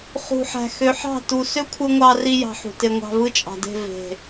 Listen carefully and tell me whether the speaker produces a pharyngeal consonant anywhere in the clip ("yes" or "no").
yes